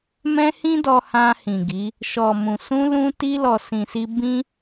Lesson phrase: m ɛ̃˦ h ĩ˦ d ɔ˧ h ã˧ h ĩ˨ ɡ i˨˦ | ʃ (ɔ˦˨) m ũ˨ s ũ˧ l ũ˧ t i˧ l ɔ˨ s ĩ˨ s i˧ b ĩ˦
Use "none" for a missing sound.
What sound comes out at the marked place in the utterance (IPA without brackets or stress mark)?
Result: ɔ˨